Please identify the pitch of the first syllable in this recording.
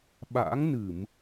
rising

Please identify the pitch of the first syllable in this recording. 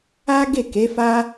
high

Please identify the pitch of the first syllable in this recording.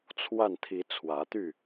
falling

